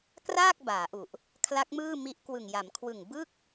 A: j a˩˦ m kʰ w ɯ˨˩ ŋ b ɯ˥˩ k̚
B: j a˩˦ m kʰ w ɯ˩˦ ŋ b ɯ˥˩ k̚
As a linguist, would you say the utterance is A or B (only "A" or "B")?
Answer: A